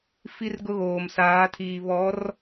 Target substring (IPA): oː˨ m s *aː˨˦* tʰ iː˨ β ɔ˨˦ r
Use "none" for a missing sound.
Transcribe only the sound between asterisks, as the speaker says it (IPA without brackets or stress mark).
aː˨˦